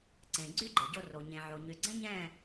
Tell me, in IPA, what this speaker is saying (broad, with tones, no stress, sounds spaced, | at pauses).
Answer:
ǀ ẽ˨ ɡ͡ǀ y˦ ɡ͡ǃ e˨ ɟ o˧ r o˨ ɲ ẽ˨ ʕ o˨ ɲ y˨ ɡ͡ǀ ɛ̃˦ ɲ ɛ̃˦˨